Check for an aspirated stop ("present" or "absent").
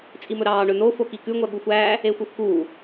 absent